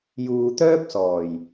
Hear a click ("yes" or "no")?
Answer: no